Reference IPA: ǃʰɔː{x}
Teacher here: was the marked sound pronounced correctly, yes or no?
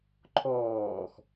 yes